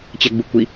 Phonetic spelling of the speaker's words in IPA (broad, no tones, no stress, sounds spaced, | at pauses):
t͡ɕ ɛ ɡ͡b u kʷ i